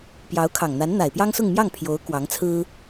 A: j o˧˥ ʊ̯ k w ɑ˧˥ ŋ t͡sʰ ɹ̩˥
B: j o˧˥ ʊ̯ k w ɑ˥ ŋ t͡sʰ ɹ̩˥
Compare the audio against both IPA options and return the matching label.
A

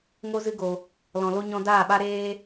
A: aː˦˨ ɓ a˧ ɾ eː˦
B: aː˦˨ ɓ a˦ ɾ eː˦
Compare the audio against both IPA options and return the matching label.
B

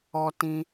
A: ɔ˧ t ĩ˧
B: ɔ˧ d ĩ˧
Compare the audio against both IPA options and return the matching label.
A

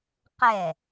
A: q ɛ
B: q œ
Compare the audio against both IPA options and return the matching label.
A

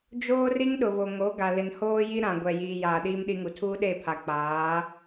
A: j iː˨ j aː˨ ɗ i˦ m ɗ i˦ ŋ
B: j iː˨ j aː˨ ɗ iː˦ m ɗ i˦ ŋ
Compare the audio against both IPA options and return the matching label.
B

